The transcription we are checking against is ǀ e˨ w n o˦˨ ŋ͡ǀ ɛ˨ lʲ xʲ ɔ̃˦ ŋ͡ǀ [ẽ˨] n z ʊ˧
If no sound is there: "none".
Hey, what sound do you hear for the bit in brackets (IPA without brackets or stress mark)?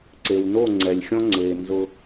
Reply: e˨